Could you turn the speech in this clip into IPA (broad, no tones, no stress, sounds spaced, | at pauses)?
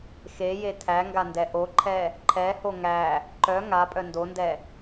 x e j e tʰ æ ŋ ɡ a n d ɛ ʔ o ǃʰ ɛ | ǃʰ ɛ h o ŋ æ | ǃ œ ŋ a pʼ œ n d o n d ɛ